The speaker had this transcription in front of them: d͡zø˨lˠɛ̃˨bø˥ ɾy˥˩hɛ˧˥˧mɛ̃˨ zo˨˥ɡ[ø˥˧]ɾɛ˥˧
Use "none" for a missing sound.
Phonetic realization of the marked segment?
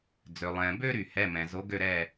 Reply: ø˥˧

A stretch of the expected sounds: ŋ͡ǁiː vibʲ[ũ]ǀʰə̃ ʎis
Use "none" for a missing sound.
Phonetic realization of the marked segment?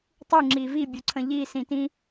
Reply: u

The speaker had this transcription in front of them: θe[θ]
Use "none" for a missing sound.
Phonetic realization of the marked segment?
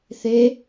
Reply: none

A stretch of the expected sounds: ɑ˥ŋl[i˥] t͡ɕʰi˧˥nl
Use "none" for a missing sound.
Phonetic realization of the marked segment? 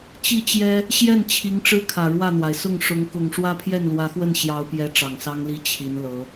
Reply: i˥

